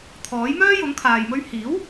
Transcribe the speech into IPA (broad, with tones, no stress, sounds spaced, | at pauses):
t̪ʰ ɔː˨˥ j m œː˥ j ʊ˨˥ ŋ kʰ aː˨ j m ɵ˥ ɥ h iː˨˥ w